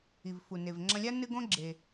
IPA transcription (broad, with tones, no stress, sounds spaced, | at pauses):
i˩ v f u˩ n e˩ v ŋ͡ǁ ɐ̃˧ lʲ a˥ n ɨ˧ ɡ õ˧ ɡ͡ǁ e˩